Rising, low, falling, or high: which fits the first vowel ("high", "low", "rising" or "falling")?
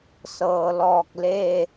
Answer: low